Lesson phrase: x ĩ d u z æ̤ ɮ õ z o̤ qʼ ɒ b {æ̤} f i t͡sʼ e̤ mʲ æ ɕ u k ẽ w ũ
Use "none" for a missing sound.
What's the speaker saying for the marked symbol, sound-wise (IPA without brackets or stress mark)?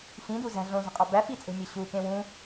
æ